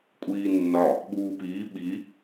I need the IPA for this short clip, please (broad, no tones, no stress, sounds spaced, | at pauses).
kʷʼ iː nː ɒ | ɓ uː p iː ɓ i